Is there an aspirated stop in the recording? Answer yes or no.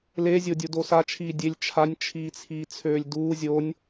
yes